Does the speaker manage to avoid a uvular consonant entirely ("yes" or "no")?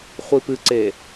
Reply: no